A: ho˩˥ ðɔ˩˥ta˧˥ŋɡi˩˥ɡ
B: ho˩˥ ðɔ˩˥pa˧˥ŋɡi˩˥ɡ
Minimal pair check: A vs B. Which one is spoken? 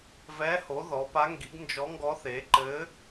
B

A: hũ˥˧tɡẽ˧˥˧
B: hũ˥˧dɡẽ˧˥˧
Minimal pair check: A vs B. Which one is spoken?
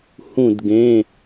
B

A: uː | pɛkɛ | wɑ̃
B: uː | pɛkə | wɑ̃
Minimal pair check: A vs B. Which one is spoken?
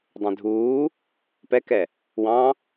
A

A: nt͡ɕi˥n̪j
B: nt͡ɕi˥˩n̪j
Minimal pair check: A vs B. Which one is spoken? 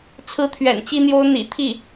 A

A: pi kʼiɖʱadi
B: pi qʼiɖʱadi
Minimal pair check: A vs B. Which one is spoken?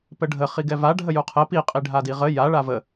B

